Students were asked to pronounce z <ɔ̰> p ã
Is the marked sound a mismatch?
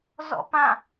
no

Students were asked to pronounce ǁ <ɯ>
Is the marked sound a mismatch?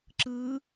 no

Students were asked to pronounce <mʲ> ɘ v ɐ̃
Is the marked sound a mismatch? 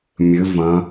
no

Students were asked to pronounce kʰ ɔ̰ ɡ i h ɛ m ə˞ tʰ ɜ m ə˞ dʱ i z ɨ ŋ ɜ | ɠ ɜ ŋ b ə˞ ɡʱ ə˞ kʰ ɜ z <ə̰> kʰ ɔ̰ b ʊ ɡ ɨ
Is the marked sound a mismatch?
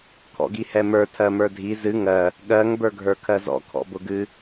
yes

